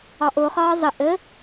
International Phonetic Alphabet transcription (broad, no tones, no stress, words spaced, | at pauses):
ɒʔoχɒː zˤə ʔə